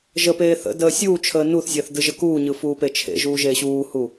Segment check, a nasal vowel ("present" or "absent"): absent